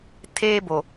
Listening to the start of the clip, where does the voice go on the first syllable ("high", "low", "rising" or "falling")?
high